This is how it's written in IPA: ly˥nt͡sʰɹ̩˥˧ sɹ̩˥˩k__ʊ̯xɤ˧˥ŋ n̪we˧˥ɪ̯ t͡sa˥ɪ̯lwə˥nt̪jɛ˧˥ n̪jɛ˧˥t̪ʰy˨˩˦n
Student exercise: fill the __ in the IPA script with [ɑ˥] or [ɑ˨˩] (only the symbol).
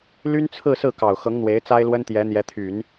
ɑ˨˩